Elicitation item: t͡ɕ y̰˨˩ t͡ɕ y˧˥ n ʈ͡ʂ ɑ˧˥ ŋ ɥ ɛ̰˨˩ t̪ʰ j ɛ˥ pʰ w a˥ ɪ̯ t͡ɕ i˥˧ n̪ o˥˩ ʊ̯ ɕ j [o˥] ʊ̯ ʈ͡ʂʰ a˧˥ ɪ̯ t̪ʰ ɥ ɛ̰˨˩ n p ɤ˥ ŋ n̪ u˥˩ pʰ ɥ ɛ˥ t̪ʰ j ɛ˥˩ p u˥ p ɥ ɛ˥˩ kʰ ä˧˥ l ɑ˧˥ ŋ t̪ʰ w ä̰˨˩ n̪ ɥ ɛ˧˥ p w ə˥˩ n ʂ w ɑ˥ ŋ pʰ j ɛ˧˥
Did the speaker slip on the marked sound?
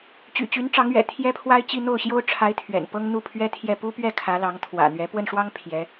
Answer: no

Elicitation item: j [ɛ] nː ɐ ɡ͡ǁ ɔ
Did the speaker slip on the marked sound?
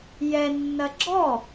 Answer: no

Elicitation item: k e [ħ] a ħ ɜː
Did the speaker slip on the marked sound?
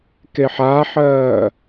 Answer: no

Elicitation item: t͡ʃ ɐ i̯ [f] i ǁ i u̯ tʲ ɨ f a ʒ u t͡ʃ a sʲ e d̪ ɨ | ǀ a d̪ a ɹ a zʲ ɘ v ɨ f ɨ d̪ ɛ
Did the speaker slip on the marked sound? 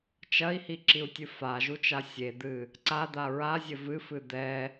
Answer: yes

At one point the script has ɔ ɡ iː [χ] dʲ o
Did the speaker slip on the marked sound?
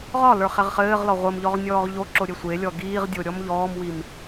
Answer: yes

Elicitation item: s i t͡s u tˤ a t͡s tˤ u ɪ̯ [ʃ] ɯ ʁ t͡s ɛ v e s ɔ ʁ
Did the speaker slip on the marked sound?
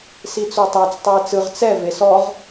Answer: yes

